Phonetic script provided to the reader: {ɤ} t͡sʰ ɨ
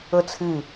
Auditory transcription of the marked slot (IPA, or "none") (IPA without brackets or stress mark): ɤ